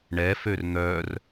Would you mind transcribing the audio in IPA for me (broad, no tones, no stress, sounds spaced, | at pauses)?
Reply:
ɳ ɛ f ø r n̪ œ r